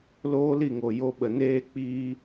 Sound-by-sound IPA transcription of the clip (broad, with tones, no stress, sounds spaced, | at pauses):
l oː˦ l i˦˨ ŋ o˨ j o˧ ɓ ə˨ n eː˦ k͡p iː˦